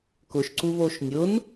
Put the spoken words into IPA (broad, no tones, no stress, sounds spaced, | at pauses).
k ʊ ʃ ǀ u β o ʃ nʲ ʊ n